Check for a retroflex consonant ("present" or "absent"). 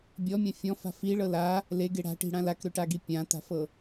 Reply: present